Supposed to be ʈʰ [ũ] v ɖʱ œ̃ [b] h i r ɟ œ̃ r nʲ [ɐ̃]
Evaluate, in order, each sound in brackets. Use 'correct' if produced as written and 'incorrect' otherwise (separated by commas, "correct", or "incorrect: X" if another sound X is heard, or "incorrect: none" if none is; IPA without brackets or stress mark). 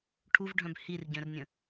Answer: incorrect: u, correct, incorrect: ə̃